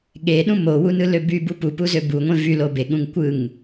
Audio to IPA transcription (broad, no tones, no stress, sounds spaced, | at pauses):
ɠ e ɗ ũ m o w u n ɯ l ø b y b u p u p u z ø b u ŋʷ ẽ v y l o b e ɠ ũ ŋ kʷ ɯ ŋ